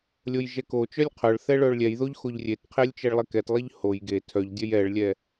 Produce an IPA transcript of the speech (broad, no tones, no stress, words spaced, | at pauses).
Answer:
lʲojʒɛkot͡ʃœlʲ qʰœɭθɛ ɭœɭlʲɛjðoʎ xoʎrʲetqʰelʲ t͡ʃeɭlˠekɛtlˠeʎ hoj ɡe tʰœʎdʲœj ɛɭlʲɛ